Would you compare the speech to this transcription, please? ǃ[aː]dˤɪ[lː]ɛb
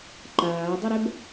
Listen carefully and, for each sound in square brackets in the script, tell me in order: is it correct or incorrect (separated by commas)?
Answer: correct, incorrect